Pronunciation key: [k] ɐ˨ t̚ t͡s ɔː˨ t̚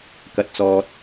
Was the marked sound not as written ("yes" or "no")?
no